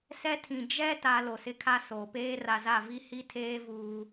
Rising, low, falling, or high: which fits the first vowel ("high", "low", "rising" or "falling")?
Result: high